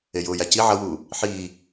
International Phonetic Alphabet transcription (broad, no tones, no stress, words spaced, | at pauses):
ejʊːjæ ci ʕʌwuː | ħiː